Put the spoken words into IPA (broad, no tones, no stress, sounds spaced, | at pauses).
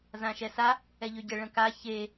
z ã ʃ ɛ s a | ɛ ʎ ø ɟ ə ɭ ə̃ k a ç e